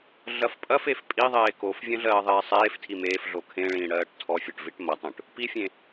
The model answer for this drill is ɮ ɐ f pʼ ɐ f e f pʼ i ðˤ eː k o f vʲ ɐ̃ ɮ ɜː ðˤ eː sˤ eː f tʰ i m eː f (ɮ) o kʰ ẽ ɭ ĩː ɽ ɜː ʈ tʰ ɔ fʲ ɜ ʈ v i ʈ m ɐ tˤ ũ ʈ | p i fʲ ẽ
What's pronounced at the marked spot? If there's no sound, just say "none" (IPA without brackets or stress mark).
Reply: ɮ